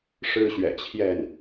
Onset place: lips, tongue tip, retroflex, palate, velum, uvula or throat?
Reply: retroflex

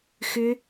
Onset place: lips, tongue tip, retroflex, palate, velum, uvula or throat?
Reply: velum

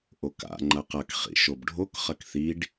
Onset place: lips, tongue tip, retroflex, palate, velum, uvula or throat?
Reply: throat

